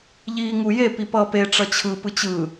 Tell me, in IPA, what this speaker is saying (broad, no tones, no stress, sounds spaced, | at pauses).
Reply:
ʎ iː ŋ u j e p i p ʌː p e ʈ͡ʂ ʌ t͡ɕʰ ɯ p ɯ t͡ɕ ɯ